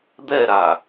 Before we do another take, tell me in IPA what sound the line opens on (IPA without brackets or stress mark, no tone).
d̪